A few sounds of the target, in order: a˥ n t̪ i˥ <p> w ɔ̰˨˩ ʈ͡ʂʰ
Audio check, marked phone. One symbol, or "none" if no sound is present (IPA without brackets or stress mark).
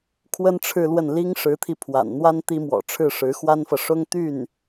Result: m